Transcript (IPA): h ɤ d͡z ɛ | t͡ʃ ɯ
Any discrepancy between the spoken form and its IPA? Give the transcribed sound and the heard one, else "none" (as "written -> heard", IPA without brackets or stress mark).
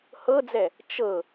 ɯ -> ɤ